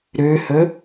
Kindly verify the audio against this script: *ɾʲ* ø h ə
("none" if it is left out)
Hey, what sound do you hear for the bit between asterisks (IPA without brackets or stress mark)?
ɾ